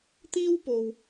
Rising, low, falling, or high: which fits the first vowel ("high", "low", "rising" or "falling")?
high